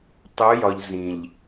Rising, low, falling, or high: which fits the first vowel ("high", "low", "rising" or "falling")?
rising